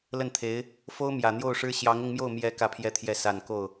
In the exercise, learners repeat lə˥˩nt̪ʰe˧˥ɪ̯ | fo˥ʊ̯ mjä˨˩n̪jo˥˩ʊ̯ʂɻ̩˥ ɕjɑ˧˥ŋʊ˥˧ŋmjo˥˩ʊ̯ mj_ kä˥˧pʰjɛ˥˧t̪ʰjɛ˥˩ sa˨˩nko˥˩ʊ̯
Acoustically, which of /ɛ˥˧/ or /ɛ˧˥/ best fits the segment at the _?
ɛ˧˥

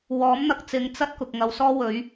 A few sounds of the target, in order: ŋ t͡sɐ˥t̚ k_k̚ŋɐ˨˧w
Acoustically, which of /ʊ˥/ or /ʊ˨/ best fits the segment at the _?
ʊ˨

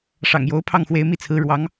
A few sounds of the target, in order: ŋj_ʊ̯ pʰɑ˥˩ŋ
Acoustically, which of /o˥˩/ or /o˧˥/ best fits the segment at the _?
o˧˥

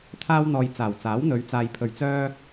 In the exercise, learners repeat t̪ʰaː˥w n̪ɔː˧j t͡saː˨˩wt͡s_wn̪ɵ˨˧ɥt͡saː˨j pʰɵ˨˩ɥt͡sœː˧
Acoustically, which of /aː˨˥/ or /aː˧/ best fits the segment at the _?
aː˨˥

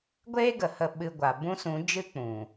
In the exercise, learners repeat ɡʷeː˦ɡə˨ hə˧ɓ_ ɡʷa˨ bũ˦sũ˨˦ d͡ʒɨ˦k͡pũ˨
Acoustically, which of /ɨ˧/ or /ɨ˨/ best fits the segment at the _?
ɨ˧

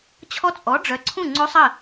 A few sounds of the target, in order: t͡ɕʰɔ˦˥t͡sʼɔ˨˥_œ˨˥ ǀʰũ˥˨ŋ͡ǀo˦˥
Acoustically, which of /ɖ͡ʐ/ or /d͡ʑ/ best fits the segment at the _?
ɖ͡ʐ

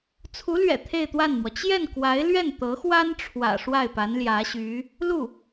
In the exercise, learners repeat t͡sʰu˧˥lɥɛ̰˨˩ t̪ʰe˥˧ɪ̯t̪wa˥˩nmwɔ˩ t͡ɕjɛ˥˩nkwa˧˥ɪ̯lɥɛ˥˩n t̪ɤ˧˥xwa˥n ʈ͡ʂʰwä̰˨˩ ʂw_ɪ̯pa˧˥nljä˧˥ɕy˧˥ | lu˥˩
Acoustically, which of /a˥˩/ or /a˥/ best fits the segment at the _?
a˥˩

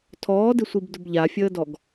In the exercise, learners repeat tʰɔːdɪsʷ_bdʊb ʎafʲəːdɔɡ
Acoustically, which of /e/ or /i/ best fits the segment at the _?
i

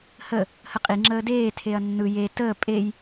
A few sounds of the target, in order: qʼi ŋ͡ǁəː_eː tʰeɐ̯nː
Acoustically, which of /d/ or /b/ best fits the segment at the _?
d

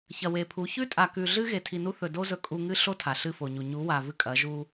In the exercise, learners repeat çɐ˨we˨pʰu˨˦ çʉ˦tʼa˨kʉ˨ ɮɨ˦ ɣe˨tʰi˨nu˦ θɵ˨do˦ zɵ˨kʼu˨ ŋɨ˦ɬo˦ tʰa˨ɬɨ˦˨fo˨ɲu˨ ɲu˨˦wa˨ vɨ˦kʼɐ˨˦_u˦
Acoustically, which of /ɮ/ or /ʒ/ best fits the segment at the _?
ʒ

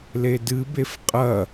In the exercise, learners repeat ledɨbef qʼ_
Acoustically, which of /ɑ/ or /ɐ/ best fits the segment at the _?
ɐ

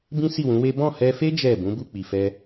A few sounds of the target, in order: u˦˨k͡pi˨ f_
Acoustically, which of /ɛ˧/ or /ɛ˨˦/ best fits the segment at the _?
ɛ˧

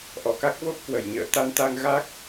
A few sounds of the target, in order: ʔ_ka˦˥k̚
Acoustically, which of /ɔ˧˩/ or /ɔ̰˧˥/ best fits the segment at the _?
ɔ˧˩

